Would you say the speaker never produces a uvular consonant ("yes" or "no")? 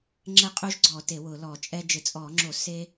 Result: no